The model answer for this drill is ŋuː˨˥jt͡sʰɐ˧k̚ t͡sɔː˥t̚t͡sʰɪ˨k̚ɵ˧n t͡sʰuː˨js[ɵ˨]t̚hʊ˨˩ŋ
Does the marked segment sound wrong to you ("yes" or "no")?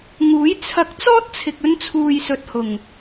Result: no